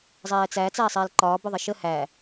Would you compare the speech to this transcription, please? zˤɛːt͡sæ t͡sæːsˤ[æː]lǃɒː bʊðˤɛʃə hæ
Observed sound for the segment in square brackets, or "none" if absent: ɛː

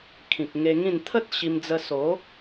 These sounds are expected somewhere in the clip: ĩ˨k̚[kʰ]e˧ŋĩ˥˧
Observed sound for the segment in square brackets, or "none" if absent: ŋ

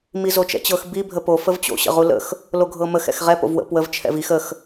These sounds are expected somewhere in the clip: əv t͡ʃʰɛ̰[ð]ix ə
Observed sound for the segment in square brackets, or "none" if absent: v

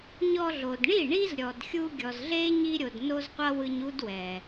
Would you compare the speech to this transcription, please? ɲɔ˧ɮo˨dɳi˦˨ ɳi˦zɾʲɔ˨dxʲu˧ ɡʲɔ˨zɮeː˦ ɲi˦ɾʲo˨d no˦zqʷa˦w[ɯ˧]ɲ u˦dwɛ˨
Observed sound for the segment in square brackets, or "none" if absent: ɯ˧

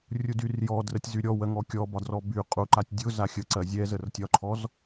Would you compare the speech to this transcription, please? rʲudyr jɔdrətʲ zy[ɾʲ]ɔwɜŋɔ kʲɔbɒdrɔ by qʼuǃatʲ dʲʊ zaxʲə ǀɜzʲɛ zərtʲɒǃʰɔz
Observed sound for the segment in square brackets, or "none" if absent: ɾʲ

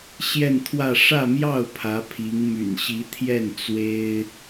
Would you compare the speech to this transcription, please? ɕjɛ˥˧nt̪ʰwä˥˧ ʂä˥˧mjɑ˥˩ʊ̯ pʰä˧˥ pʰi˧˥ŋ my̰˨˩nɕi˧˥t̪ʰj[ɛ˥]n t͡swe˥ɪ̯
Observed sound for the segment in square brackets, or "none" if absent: ɛ˥˩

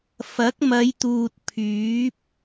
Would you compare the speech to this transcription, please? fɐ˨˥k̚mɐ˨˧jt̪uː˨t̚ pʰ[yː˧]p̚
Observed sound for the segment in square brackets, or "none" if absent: yː˨˥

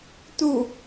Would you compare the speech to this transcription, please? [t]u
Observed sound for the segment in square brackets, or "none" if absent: t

